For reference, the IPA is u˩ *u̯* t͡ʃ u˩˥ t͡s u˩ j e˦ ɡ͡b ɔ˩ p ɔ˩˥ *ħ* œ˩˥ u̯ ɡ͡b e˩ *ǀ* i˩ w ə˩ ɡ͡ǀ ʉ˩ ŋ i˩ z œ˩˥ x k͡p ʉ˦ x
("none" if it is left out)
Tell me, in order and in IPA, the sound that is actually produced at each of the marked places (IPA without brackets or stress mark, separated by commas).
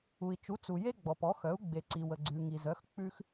i̯, x, ǀ